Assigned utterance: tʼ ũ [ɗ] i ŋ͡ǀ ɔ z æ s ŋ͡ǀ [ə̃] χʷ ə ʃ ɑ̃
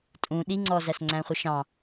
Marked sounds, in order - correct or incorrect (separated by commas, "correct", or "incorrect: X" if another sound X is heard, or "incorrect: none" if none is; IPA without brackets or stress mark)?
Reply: correct, incorrect: æ̃